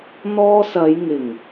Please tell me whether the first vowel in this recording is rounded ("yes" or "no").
yes